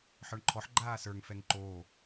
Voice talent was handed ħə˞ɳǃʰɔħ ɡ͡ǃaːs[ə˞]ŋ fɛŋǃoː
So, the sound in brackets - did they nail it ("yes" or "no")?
yes